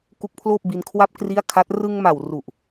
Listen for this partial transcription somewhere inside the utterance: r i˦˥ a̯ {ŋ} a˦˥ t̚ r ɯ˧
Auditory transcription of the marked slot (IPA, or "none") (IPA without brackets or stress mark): kʰ